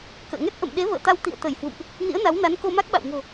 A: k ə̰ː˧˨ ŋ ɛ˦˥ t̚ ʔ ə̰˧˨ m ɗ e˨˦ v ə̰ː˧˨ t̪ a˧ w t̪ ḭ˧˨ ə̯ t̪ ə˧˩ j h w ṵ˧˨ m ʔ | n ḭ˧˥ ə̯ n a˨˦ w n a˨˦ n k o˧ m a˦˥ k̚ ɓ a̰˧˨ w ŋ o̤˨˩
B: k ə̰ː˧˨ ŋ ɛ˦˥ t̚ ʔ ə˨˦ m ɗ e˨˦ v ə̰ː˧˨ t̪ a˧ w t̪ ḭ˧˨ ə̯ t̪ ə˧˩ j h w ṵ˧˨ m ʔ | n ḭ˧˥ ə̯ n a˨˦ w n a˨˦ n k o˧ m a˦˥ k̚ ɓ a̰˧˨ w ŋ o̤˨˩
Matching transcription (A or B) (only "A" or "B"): A